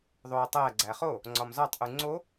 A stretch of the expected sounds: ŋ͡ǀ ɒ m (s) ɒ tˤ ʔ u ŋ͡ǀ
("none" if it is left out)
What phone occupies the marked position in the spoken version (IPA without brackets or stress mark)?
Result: z